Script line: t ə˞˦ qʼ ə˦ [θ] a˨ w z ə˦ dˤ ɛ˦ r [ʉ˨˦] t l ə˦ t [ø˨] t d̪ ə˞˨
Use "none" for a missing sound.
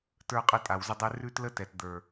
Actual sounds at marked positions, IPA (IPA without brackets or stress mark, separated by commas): tʼ, ʉ˦, ɛ˨